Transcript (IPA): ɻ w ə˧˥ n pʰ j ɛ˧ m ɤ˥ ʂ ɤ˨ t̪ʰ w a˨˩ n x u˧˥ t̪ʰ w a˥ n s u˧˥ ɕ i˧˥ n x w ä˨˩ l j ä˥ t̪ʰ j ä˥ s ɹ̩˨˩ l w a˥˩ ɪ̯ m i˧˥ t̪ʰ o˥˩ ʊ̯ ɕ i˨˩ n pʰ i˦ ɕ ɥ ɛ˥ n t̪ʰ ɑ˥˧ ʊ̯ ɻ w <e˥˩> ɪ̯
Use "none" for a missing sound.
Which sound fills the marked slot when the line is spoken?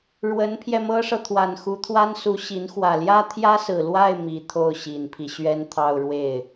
e˥˩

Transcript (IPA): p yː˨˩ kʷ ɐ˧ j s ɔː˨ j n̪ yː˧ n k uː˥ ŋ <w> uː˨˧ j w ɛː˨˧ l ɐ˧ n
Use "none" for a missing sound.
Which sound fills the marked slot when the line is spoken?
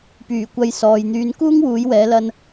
w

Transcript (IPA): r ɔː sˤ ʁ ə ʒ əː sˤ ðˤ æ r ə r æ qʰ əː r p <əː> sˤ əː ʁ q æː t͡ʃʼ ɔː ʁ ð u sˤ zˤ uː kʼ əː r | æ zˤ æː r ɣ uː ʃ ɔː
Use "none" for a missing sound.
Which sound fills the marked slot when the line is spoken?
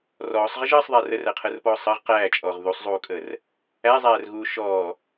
ɔː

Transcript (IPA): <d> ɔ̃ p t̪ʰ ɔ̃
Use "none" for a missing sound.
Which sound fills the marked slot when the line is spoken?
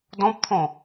d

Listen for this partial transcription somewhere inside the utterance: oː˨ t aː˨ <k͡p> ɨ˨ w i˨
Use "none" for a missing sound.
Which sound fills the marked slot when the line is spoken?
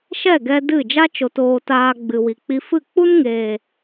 ɡ͡b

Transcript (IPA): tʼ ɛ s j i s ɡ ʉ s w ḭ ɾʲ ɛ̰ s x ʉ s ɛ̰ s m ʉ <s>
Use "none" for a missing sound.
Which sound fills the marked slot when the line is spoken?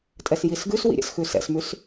s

